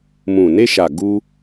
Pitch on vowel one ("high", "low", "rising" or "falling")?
low